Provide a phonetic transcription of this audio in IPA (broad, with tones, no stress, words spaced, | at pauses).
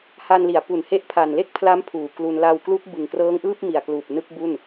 ha˧nli˩˦a̯pu˨˩n he˦˥ʔpʰa˨˩nle˥˩k̚pʰla˦˥m pʰuː˨˩klu˧n la˧wklu˦˥k̚ bɯ˨˩ŋkrɤː˦˥ŋʔɯː˥˩p̚ mi˨˩a̯kluː˨˩p̚ nɯ˥˩k̚bu˥˩n